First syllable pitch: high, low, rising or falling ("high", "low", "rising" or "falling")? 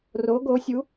rising